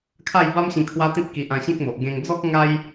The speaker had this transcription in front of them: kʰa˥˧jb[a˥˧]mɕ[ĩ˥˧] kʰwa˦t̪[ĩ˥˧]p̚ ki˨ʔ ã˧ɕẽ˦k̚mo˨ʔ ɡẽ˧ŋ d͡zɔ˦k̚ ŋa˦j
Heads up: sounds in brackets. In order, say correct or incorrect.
incorrect: a˦, incorrect: ĩ˧, incorrect: ĩ˦

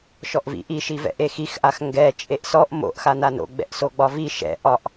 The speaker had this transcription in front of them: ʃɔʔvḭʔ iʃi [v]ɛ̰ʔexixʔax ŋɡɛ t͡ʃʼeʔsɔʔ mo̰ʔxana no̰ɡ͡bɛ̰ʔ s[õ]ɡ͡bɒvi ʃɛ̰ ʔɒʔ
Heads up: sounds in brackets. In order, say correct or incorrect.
correct, incorrect: o

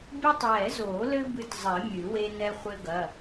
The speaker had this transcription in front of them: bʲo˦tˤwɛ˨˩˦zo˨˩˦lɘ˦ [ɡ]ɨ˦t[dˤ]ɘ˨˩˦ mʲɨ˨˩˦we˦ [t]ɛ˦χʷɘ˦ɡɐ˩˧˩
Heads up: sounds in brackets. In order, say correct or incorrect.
incorrect: b, incorrect: zˤ, incorrect: n

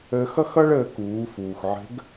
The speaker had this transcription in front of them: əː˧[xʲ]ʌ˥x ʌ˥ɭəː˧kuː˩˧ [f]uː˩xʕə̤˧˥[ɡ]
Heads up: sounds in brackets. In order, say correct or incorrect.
incorrect: x, correct, correct

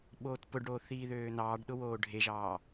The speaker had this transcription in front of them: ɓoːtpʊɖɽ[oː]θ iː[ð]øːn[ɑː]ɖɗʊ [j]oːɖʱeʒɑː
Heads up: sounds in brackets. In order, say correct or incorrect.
correct, correct, correct, incorrect: w

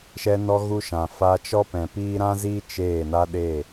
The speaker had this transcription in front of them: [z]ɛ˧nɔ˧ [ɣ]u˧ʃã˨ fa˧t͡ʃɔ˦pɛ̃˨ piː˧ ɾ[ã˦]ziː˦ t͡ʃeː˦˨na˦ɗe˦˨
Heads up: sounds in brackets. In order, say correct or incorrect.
incorrect: ʃ, correct, correct

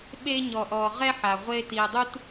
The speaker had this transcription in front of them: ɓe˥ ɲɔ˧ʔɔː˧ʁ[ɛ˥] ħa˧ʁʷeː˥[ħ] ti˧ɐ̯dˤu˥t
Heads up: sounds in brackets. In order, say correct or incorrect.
correct, incorrect: none

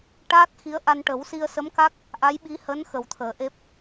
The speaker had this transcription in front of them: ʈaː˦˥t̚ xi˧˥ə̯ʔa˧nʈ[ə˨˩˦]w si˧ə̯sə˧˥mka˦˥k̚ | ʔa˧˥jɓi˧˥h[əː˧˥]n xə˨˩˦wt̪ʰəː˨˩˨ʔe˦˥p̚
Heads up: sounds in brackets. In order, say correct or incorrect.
correct, correct

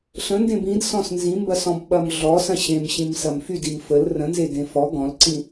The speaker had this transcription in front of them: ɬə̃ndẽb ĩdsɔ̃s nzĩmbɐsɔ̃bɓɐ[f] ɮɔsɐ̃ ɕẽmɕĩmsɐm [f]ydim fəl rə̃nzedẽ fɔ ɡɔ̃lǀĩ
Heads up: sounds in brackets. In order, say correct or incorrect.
incorrect: m, correct

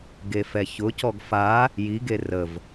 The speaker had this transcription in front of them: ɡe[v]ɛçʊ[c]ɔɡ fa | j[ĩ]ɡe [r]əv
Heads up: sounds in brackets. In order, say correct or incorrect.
incorrect: f, correct, incorrect: i, correct

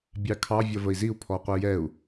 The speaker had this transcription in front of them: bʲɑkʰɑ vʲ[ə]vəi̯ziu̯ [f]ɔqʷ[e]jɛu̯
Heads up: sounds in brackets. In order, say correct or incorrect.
incorrect: ʌ, incorrect: pʰ, incorrect: ɛ

